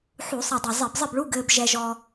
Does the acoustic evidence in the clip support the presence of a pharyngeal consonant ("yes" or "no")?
yes